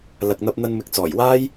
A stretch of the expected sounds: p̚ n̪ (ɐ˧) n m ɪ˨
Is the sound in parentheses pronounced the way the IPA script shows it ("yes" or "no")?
yes